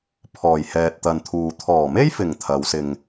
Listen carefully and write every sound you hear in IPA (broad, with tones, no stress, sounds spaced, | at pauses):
pʰ ɔː˨˩ j h ɛː˨ t̚ t̪ ɐ˨ n t̪ʰ uː˨ t̪ʰ ɔː˨˩ m e˥ j f ɪ˨˩ ŋ t̪ʰ ɐ˨˧ w s ɪ˧ ŋ